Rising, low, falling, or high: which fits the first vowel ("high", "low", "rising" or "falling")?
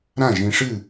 falling